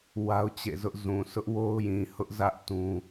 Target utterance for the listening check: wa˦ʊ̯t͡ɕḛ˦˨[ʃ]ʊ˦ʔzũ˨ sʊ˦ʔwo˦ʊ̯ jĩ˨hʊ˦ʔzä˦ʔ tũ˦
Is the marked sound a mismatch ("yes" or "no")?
yes